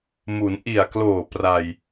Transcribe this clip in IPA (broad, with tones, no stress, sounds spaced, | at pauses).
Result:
m u˩˦ n ʔ i˨˩ a̯ k l oː˨˩ p r a˧ j